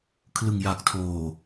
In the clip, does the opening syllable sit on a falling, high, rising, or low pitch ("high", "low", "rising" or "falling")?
low